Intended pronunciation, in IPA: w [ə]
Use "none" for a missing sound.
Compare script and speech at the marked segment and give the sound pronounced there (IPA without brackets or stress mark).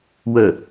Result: ə